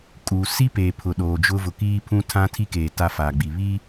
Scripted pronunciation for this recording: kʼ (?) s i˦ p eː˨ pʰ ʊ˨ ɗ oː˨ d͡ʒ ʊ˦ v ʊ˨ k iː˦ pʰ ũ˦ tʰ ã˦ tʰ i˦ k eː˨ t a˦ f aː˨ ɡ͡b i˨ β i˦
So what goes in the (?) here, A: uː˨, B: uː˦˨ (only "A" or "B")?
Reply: A